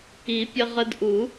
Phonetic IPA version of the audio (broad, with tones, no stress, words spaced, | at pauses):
i˨˩˦pʲə˧ʁə˧d ʔu˨˩˦